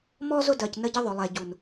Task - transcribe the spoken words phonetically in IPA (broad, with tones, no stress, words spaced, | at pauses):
mɔ˦zʊ˦dɜ˨c nə˦ɟə˦ðˤʊ˨lˠɛ˨ ɟu˨n